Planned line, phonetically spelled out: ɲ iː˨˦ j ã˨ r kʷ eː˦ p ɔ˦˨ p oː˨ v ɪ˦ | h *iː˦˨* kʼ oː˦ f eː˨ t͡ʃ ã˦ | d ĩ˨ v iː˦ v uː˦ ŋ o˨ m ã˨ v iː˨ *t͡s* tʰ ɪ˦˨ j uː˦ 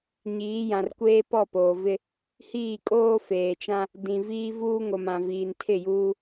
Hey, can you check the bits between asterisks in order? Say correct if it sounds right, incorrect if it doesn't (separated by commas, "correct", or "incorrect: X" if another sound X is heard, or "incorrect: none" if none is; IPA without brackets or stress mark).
correct, incorrect: n